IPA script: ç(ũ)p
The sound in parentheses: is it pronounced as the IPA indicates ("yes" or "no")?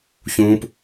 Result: yes